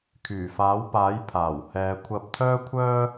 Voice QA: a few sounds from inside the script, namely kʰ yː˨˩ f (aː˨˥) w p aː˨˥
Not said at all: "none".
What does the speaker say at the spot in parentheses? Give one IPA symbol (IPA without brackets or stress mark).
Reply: aː˨˥